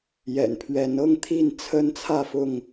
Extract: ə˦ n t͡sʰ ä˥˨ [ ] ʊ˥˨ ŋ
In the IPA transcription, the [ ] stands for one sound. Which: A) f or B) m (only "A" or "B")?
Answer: A